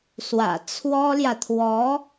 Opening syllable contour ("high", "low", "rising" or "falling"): low